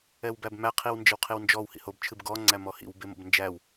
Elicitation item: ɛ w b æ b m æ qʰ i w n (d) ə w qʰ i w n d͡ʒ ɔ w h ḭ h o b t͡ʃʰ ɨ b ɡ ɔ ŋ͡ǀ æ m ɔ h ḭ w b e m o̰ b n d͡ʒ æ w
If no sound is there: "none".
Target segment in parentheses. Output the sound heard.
d͡ʒ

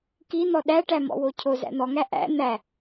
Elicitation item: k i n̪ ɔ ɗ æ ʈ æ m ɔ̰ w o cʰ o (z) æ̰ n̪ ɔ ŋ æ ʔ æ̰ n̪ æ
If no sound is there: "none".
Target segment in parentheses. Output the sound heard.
z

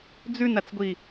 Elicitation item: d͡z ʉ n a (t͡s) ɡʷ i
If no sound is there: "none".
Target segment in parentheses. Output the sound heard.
t͡s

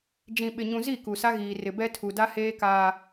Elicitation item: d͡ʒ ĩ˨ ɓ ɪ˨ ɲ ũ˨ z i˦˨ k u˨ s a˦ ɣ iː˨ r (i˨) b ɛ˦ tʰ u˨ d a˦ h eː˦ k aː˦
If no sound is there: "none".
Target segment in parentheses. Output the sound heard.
ɪ˨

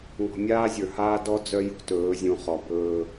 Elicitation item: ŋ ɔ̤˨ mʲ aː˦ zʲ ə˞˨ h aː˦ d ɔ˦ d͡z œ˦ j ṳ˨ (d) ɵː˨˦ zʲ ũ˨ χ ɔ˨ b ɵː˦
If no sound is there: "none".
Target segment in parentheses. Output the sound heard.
t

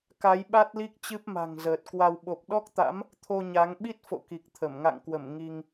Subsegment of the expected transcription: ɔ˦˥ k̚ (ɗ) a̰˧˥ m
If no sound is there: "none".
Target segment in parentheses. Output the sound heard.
t̪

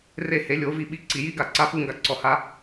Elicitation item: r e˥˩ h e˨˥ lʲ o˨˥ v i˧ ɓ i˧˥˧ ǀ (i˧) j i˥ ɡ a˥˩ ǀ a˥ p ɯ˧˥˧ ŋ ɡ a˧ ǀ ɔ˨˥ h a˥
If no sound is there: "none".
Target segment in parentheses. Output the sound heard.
i˧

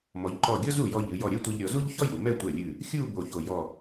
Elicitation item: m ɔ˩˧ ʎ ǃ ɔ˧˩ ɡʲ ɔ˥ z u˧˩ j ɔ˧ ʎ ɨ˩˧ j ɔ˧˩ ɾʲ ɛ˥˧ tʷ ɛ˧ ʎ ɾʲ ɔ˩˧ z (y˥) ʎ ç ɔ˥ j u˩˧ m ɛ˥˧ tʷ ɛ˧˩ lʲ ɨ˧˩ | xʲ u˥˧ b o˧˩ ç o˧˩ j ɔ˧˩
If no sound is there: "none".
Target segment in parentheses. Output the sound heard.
u˥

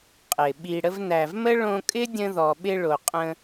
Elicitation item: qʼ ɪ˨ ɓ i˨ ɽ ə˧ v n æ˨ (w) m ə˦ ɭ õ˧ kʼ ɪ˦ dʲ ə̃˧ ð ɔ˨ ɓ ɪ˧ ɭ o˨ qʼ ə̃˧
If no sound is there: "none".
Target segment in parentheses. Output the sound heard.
v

